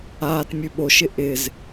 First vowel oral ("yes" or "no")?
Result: yes